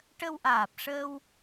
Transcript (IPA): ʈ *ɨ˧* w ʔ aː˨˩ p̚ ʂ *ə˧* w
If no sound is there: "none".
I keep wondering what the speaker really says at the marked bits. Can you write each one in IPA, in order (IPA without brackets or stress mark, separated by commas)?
ə˧, əː˧